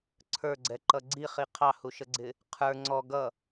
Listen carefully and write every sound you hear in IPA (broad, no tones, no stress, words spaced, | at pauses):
ǀʰə˞ɡ͡ǀɛǃʌ ɡ͡ǀiχi qʰɑhuʃəɡ͡ǀɪ | qʰə˞ ŋ͡ǀɔ ɡʌ